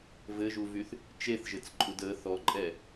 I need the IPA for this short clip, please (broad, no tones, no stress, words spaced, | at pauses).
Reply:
vɘʒuvyθ | t͡ʃeθʒɘt͡sǃʼud ə θɔǃʼɛ